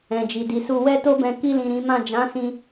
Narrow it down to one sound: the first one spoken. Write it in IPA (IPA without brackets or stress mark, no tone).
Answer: ɛ̃